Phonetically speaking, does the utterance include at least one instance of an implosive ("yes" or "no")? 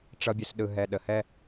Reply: yes